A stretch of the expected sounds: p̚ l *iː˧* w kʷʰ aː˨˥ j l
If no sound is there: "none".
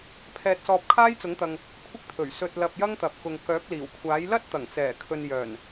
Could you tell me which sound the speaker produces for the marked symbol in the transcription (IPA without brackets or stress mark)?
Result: iː˨˩